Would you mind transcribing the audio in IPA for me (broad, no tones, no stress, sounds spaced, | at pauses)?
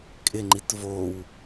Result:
kʼ ɪ ŋ͡ǃ i t v o w